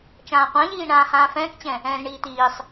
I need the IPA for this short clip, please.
t͡ʃãːqʷãʎiː ɳãːhãːfɛ̃ːkt͡ɕɛ̃ | ɛ̃ːzɳiːt̪iːsˤ

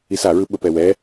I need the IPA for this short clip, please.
isaɹɯ ɓəpɛwɛ

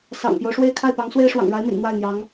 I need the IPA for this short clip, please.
sɑ̰˨˩ŋpjo˦ʊ̯ʂwe˥˧ɪ̯ kʰa˥˩ɪ̯pɑ˧˥ŋswe˥ɪ̯ ʂwɑ̰˨˩ŋɻa˧˥ɪ̯mḭ˨˩n n̪wa˥˩ɪ̯n̪jɑ˧˥ŋ

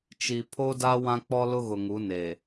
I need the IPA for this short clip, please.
t͡ʃi˨ pʰo˦da˦ wã˦k͡pɔ˦lʊ˦ ɣʊ˨ŋu˨˦ne˨

